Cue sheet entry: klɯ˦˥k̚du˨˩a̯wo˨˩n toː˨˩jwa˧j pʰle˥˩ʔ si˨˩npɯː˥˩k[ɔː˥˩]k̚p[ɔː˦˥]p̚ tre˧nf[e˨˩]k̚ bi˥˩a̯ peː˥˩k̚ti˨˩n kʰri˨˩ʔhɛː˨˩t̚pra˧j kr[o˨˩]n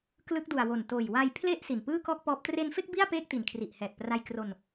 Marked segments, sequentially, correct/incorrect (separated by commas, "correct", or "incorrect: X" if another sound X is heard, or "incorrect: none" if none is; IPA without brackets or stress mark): correct, correct, incorrect: e˥˩, incorrect: o˧